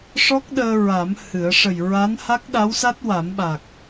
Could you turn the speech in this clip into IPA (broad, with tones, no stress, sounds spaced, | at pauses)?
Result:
ʂ ɔ˦˥ k̚ ɗ əː˧ ɹ a˨˩˦ m h ɨ˨˩˦ ə̯ ʂ ə˨˩ j ɹ a˧˥ n h a˦˥ k̚ ɗ a˧˥ w s a˦˥ t̚ w a˨˩˦ m ɓ a˨˩ k̚